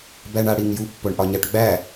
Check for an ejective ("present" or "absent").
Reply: absent